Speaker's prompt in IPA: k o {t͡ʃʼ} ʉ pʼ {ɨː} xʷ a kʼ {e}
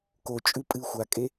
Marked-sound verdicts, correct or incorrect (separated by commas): correct, correct, correct